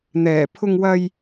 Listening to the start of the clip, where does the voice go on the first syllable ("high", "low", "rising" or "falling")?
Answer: low